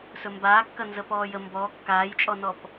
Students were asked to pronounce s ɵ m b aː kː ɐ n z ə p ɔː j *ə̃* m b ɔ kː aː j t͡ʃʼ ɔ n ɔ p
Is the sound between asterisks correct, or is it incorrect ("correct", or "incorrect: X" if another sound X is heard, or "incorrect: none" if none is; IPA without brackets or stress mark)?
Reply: incorrect: ə